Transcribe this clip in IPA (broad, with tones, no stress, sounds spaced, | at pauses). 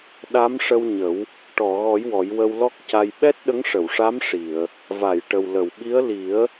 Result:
ɗ a˧˥ m ʂ ə˧ w ɲ ə˨˩˦ w | ʈ ɔ˨˩˨ ɣ ɔ˨˩˦ j w ɔ˨˩˦ j w ə˧ w l ɔ˦˥ k̚ c a˧ j ɓ ɛ˦˥ t̚ ɗ ə˧˥ ŋ ʂ ə˨˩˨ w ʂ a˧˥ m ʂ i˨˩˨ ə̯ | v a˨˩˨ j ʈ ə˨˩ w l ə˨˩˨ w ɓ i˧˥ ə̯ l i˨˩˦ ə̯